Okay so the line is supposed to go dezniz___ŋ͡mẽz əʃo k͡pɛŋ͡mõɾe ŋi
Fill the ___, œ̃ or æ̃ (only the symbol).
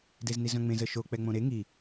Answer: œ̃